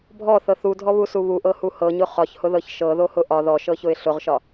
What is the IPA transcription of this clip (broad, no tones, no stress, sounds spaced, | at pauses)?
bʱ ɔ θ ɤ θ u dʱ ɔ β u s u β u ʔ ɤ h u h ɤ ɲ ʊ χ ɒ ç h ʊ ð ɤ ç ʃ ɤ ð o h ʊ ʔ ɒ ð ɔ ʃ ɤ ç ʊ ɪ̯ ɬ ʊ ʁ ʃ ɒ